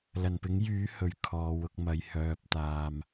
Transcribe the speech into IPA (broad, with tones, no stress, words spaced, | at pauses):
lɐ˨˩npɪ˨˥ŋjyː˨˥ hɵ˨ɥkʰɔː˨wʊ˧k̚ mɐ˨˧j hœː˨p̚t̪aː˨m